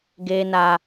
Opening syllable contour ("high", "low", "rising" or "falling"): high